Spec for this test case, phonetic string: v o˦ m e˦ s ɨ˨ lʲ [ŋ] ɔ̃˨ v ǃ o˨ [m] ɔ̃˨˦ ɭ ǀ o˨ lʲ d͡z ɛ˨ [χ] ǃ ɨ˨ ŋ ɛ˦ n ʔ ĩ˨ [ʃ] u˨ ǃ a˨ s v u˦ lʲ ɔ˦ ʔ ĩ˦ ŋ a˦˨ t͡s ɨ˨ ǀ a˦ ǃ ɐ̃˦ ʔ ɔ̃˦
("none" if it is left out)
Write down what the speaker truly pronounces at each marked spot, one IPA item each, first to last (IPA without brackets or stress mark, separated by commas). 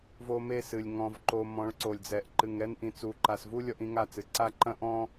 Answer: ŋ, m, ʔ, t͡s